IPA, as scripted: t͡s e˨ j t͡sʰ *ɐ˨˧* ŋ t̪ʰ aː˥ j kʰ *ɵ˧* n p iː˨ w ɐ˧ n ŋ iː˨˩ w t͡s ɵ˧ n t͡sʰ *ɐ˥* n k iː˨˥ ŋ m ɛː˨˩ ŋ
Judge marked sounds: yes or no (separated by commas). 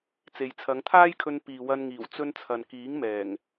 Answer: yes, yes, no